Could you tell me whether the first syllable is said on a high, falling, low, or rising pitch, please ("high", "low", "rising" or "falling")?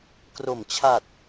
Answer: low